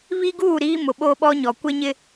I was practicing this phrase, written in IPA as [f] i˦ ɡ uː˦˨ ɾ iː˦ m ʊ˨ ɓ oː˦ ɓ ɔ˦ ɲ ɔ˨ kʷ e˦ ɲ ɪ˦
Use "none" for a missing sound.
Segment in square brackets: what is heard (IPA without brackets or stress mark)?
β